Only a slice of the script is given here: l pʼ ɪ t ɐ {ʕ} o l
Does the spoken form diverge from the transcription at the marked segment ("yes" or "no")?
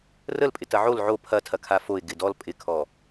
no